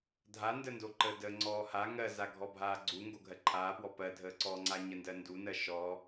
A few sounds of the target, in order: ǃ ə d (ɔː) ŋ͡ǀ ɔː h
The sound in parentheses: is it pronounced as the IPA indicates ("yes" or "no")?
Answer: no